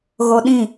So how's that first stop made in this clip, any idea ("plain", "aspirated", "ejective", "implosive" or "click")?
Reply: implosive